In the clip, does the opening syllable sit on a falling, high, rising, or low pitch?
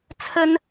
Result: high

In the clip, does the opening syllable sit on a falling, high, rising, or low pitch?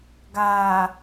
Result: low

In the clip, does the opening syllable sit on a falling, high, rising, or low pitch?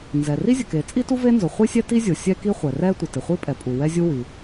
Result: low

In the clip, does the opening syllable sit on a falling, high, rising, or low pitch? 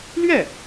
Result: falling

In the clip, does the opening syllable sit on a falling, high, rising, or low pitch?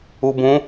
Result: low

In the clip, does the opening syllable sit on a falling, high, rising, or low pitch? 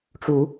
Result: rising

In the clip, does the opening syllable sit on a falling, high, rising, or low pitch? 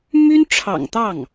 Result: high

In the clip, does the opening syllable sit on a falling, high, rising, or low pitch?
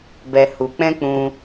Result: low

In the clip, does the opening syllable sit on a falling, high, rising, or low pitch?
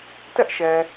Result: high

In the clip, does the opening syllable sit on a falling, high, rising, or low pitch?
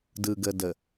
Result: low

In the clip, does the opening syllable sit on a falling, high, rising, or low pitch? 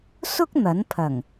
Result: high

